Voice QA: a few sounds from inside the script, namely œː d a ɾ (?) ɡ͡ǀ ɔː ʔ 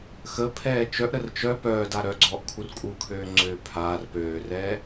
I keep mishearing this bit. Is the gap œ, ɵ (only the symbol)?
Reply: œ